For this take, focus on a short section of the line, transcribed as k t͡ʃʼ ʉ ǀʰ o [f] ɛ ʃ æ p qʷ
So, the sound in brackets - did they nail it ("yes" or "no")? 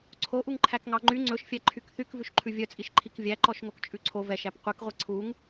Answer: no